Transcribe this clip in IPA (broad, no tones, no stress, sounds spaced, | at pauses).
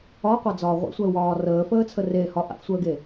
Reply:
ɒ qʷ a d͡z ɒː ʁʷ ḛ sʷ əː w ɒː r əː f əː t͡sʰ ə r e h ɒ ʔ a̰ f sʷ əː ɡ e